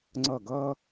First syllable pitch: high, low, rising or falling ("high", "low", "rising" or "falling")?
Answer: falling